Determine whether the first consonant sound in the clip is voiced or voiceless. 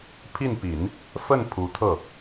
voiceless